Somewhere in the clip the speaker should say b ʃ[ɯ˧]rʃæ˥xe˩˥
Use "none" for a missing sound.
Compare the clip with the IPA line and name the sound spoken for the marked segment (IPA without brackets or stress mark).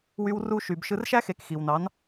ɯ˧